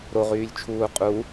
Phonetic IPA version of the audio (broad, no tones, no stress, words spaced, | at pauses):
ɾoʁyːlʲt͡ʃʰuː qʼu